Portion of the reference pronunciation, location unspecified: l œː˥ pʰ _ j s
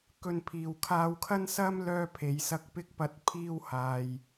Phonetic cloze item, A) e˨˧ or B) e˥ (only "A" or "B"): A